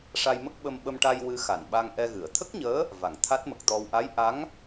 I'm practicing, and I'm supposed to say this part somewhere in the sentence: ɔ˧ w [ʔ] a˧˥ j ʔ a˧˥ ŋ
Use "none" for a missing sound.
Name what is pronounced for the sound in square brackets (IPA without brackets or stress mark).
ʔ